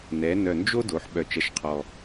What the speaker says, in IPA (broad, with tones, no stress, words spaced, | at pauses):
nɛ˩˧nœ˨˩ nd͡ʒo˥do˩˧ħ ɓœ˨˩t͡ʃɐ˨˥ʃqʰɔ˨˩